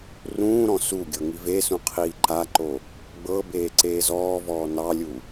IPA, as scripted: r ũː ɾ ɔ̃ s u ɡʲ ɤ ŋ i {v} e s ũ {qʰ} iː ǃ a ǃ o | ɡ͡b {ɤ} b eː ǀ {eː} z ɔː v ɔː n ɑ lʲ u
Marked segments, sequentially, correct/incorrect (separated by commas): correct, correct, correct, correct